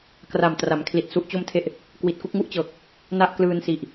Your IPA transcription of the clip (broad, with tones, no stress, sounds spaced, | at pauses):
k r a˨˩ m t r a˩˦ m kʰ l i˨˩ t̚ s u˦˥ ʔ t͡ɕ o˥˩ m tʰ e˥˩ ʔ | k w i˨˩ t̚ k u˥˩ k̚ ŋ u˥˩ ʔ t͡ɕ ɤː˨˩ k̚ | n a˥˩ ʔ k l ɯː˧ n s i˨˩ ʔ